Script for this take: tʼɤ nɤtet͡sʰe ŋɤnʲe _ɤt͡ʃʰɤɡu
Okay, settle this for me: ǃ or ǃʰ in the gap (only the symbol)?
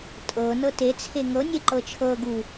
ǃ